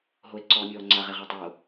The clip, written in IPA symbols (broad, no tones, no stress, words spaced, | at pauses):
ɦoe̯ǀɔːmʲɔːŋ͡ǀa ʁeʁatˤo